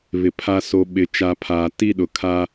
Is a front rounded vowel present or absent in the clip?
absent